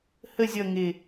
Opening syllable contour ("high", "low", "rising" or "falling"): falling